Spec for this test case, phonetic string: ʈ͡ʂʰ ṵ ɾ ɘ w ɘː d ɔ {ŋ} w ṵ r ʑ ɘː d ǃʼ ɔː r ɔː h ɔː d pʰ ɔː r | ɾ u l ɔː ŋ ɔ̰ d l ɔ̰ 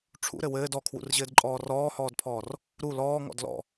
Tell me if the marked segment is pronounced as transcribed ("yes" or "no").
no